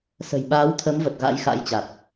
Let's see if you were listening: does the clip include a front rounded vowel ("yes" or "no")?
no